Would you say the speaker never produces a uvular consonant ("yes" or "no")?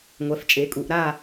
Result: yes